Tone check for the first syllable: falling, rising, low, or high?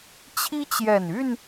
high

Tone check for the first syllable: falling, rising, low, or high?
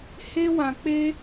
high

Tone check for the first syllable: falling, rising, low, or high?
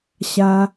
low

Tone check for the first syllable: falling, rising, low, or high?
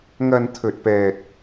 low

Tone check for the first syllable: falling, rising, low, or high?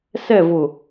falling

